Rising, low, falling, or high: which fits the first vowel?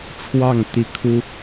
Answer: falling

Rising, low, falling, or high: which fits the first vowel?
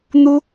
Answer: high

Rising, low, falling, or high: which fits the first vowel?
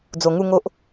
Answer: low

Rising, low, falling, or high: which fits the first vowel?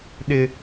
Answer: high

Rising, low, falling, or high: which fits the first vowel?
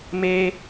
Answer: high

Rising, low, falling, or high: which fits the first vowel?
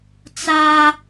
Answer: high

